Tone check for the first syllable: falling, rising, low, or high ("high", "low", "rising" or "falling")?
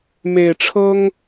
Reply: low